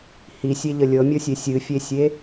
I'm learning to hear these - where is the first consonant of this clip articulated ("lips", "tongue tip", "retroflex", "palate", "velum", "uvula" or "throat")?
throat